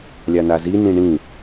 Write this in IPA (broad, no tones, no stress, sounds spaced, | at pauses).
lʲ a n a z i n ĩ ɳ ĩ